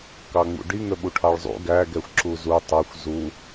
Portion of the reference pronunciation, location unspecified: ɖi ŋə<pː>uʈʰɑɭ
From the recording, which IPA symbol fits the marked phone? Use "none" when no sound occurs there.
ɓ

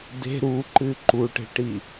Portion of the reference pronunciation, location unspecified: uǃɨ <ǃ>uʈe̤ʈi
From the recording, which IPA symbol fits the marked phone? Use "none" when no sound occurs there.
ǃ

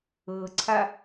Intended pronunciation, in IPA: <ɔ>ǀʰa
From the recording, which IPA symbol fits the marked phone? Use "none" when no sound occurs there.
ɤ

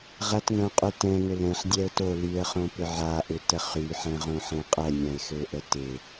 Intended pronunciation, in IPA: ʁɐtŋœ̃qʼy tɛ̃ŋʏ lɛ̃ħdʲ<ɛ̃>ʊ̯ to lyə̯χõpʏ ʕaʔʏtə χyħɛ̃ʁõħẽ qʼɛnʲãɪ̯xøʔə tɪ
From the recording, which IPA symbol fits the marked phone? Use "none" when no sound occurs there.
ɛ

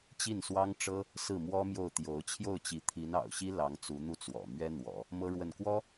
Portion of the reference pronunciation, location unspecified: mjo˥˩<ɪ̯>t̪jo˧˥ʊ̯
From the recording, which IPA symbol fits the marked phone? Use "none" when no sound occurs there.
ʊ̯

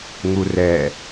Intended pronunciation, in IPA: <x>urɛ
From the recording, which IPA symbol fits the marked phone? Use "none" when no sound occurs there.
ŋ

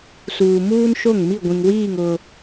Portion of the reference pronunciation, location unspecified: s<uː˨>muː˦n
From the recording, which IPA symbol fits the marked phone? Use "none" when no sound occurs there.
uː˨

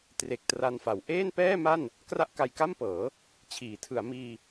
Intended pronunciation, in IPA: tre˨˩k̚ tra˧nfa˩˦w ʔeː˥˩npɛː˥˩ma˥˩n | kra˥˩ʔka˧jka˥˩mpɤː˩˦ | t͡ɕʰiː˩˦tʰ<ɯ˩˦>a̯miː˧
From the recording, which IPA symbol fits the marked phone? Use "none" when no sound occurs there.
ɯ˩˦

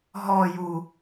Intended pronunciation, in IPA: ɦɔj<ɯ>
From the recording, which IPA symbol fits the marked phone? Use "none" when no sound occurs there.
u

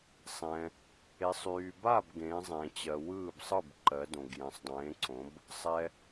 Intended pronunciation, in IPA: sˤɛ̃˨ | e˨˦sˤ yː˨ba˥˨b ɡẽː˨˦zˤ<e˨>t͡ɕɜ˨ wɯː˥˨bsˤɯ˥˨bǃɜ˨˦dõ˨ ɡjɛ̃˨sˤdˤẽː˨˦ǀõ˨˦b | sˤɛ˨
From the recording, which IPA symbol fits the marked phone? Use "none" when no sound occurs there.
ẽ˨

